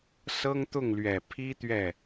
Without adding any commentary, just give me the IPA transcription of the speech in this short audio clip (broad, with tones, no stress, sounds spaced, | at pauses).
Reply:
s ɤ˥ ŋ t̪ ʊ˥˩ ŋ l ɥ ɛ˨˩ pʰ i˥ t̪ ɥ ɛ˥˩